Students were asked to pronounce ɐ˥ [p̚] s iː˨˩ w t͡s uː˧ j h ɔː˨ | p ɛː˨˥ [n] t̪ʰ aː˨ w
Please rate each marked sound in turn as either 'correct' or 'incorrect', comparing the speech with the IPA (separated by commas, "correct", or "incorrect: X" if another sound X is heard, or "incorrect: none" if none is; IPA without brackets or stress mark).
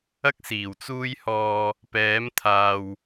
incorrect: k̚, incorrect: m